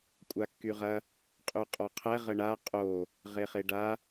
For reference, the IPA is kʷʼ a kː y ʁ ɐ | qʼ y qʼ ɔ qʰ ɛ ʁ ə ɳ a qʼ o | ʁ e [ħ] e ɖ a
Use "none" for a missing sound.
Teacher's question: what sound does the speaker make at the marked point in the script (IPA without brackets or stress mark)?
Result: χ